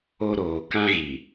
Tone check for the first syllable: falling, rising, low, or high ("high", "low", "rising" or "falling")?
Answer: high